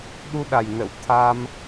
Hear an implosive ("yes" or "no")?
yes